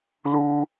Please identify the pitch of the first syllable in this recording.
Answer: high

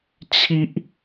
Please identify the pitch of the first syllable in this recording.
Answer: high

